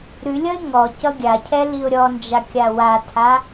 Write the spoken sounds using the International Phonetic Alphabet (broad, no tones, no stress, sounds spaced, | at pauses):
ɾ ʉ lʲ ʌ ɪ̯ ŋ ɔ c ʌ ɡʲ a cʰ ɛ l i ʊ̯ ɾʲ ɔ n d͡ʒ a kʲ a w a tʰ a